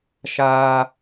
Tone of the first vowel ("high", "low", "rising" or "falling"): high